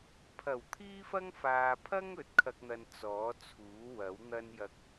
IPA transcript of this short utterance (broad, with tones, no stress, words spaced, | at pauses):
pʰɐ˨˩wt̪ʰiː˥fɐ˥ŋ faː˨pʰɐ˥ŋɵ˨˥t̚ kʰɐ˥k̚n̪ɐ˧n t͡sɔː˨˥t͡sʰuː˨˥wɐ˨˥wn̪ɐ˥n jɐ˧k̚